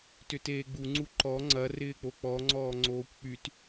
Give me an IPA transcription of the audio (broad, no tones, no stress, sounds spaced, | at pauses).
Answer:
t ʏ t eː ɡ͡b u ŋ͡ǀ u ǃ ɔ ŋ͡ǀ ɐ r ɪː k͡p o k͡p ɔ ŋ͡ǀ ɔː ŋ͡ǀ oː kʷ k͡p y t